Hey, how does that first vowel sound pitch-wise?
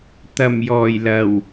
low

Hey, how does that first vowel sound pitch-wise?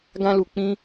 high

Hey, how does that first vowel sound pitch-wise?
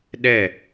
falling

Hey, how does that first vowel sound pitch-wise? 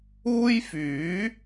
high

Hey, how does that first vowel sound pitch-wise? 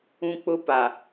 high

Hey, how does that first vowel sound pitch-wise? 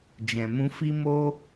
low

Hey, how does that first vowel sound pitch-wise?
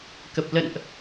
low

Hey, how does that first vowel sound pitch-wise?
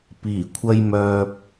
low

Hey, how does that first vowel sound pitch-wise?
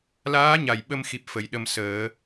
rising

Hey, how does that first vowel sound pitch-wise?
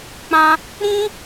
high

